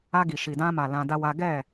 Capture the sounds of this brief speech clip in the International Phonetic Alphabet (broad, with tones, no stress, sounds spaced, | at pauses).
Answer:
a˧ ɡ i˨ ʃ i˨ d ã˧ m a˨ l ã˧ d a˦ w a˦ ɡ ɛ˦˨